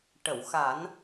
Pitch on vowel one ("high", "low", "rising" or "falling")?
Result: low